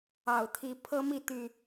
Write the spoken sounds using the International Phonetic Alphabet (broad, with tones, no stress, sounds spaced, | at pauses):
ɑ˨˩ ʊ̯ t̪ʰ i˨˦ pʰ ɤ˦ m i˥˨ t̪ y˨˩